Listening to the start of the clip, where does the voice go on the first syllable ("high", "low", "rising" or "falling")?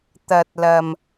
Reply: low